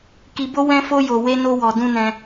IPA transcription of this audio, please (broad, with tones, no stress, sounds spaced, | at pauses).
k i˧ b o˦ w ɛ̃˦ f o˦ j o˧ w e˦ n o˦ w ɔ˧ d ũ˦ n ɛ̃˧